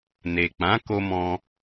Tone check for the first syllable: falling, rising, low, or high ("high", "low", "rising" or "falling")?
low